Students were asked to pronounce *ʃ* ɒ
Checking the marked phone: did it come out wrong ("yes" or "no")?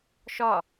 no